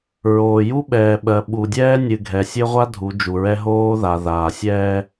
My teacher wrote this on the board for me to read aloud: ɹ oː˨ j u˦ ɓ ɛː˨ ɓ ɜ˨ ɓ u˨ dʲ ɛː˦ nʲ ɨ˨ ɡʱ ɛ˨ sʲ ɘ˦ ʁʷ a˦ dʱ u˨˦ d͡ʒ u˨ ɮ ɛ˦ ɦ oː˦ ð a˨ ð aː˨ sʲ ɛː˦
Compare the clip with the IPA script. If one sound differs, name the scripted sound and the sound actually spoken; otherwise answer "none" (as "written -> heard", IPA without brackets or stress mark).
ɮ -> ɹ